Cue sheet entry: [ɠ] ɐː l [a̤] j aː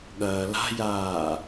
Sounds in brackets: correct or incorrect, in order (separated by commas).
correct, correct